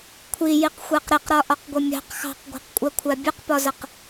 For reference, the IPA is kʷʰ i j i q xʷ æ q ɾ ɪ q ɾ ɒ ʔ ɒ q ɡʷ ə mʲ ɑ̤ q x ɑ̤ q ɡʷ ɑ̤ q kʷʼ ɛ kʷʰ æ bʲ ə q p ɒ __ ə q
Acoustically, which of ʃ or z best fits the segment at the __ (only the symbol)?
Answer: z